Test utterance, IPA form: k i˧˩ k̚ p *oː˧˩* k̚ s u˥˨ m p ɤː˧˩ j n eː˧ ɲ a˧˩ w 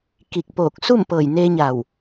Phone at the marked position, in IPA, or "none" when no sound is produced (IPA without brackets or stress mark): oː˧˩